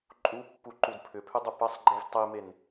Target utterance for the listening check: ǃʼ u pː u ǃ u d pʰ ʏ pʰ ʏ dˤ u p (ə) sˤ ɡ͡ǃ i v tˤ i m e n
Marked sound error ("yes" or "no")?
yes